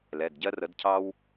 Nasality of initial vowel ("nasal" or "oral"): oral